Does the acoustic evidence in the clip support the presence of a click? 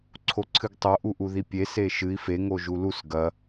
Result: yes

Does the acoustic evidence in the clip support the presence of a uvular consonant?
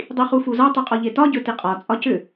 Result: yes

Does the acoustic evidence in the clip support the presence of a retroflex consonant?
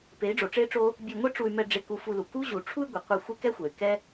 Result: yes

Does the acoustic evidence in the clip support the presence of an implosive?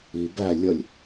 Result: no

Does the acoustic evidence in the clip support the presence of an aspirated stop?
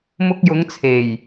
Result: yes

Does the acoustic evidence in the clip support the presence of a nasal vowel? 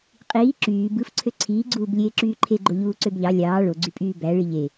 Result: no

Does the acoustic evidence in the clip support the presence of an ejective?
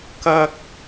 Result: no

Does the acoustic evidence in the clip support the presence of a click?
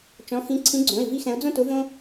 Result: yes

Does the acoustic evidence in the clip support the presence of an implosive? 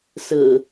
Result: no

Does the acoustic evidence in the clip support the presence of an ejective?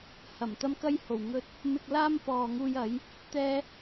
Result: no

